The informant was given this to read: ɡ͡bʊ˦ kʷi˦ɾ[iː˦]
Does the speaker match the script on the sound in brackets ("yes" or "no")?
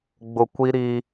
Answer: yes